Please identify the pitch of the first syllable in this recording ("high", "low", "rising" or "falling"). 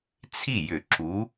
falling